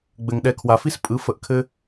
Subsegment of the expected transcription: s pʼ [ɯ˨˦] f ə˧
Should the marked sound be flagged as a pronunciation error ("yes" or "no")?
no